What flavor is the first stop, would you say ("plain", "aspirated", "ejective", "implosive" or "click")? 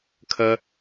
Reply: aspirated